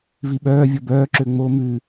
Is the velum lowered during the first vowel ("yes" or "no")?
no